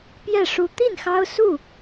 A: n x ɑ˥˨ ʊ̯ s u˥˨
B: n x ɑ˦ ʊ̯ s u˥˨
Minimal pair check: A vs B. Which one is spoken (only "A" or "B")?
B